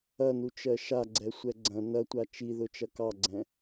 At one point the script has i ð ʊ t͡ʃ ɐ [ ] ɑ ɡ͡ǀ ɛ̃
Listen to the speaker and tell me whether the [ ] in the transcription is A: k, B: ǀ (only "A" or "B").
A